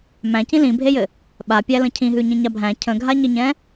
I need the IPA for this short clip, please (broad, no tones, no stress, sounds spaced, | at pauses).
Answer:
m æ̃ c ĩ l ĩ bʱ e j ɘ | ɓ a pʲ æ l ə̃ cʰ ĩ ɦ ʉ ɲ ĩ ɲ a bʱ æ̃ cʰ ə̃ ɡʱ a ɲ ɘ ɲ ɛ̃